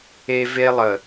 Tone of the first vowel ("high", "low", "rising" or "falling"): high